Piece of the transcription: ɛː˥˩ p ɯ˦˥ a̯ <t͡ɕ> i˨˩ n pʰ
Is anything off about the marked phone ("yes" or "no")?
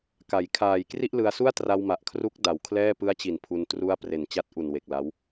no